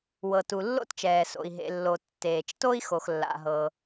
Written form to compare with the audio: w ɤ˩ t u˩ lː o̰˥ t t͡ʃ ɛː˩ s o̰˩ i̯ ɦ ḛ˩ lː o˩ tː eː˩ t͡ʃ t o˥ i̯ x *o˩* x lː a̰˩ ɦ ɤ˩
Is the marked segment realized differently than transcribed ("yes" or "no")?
no